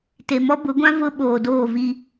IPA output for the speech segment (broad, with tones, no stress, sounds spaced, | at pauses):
t e˨ m ɔ˦ b ʊ˨˦ ɡʷ ã˦ v ʊ˦ ɓ oː˨ d oː˦˨ v i˦